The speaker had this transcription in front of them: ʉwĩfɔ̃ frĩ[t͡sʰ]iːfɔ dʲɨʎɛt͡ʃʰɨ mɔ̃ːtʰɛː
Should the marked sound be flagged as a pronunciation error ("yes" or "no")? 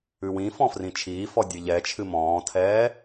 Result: yes